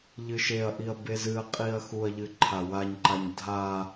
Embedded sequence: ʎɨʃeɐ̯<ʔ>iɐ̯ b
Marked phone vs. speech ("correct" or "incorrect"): correct